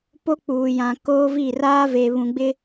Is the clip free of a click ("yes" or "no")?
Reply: yes